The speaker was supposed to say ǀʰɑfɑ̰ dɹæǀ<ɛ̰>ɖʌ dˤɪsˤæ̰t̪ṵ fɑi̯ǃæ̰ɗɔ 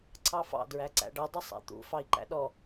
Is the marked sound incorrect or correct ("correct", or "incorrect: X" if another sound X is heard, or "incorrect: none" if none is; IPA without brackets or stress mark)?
incorrect: æ̰